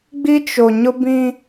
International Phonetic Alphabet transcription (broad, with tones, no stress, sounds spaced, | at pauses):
ɡ͡b i˦ t͡ʃ o˨ ɲ ʊ˦ b ĩ˦